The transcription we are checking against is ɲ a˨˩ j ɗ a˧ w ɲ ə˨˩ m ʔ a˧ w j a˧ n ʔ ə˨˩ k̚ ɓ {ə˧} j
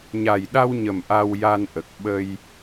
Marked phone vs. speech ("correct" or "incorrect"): correct